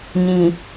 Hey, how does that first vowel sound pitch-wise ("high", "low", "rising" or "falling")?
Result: low